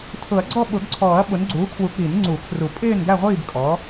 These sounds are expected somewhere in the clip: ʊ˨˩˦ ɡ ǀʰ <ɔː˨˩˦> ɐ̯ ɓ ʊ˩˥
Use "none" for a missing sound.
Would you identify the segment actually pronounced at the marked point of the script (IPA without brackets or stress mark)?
ɔː˨˩˦